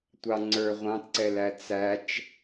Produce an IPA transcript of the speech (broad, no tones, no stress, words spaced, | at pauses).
tʷɑ ŋ͡ǀə˞ ʁʷɑ̃tǀɛlæ t͡sæt͡ʃ